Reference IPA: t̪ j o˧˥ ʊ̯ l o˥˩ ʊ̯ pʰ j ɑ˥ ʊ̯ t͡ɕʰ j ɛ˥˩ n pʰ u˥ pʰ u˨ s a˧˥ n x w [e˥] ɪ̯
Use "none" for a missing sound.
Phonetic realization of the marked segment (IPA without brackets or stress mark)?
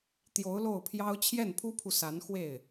e˥˩